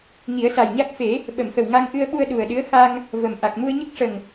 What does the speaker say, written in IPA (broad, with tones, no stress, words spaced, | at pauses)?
ŋi˨˩˦ə̯sa˨˩jɲa˦˥k̚ fe˨˩˦ | ɓə˨˩˨mxə˨˩w ŋa˧ŋʔɨ˧ə̯ɓu˧ə̯ ɗu˨˩ə̯ɗɨ˧˥ə̯ xa˧ŋ | və˨˩mʔa˨˩k̚ mu˧ə̯ɲə˦˥k̚ʂə˨˩ŋ